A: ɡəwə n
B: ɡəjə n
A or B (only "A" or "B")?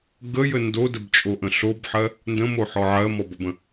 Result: B